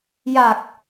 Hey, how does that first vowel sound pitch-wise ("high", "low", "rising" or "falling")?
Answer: low